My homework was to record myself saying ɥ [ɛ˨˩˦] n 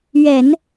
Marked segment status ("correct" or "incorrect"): correct